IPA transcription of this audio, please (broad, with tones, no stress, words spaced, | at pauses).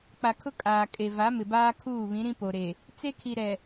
k͡pa˨kʰʊ˦kʼaː˨ kʼe˨va˨˦mɪ˨baː˦ kʰuː˦˨βĩ˨˦ ɾĩ˦po˨ɾe˨ | t͡se˦kʰi˨ɾɛ˨